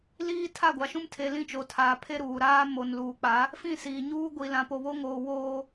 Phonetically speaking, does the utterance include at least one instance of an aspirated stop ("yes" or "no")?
yes